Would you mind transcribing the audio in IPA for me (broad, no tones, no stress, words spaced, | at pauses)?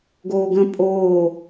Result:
ɡoːɡə̃ pʼoː